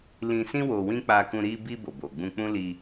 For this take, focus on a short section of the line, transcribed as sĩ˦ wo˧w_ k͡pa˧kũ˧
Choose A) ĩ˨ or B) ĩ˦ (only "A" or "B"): B